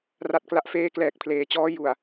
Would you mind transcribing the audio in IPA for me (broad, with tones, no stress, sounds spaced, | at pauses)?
r a˥˩ t̚ k l a˦˥ ʔ f eː˥˩ k l ɛː˨˩ k̚ pʰ l eː˩˦ t͡ɕ ɔː˦˥ j u˨˩ a̯